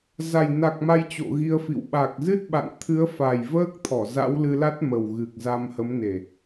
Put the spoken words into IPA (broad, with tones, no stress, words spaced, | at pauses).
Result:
za˨˩j na˨˩k̚ma˧j t͡ɕo̰˧˨ɣi˧ə̯fḭ˧˨w ɓa˨˩k̚zɨ˦˥t̚ɓa̰˧˨n t̪ʰɨ˨˦ə̯fa˨˩jvəː˦˥k̚t̪ʰɔ˧˩ za̰˧˥wlɨ˧la˦˥t̚ mə˨˩w ɣɨ˨˩k̚za˧m hə˨˦mne˨˩